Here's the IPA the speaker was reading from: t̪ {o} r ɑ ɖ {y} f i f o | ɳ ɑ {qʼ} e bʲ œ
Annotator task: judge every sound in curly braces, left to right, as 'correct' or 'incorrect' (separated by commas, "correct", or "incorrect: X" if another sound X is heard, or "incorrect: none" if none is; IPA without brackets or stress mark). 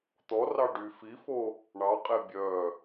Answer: incorrect: ɔ, correct, correct